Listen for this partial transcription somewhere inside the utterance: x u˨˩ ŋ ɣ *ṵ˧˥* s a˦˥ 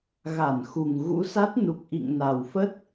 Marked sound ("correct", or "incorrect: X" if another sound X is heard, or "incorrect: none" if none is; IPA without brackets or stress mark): correct